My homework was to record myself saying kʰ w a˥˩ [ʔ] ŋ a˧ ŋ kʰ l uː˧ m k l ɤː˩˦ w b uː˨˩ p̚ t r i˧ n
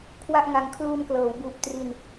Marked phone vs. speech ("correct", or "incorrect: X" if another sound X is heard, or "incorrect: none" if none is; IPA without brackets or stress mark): correct